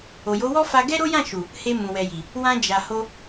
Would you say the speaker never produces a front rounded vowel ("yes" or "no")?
yes